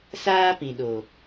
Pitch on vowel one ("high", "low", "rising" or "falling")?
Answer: high